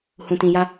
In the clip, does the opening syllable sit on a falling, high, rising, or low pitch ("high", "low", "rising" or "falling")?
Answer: low